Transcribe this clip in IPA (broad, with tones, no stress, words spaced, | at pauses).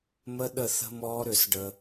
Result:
mə˦ɗə˦˨ θə̤˦mɔː˦ɾʏ˦˨s ɖə˦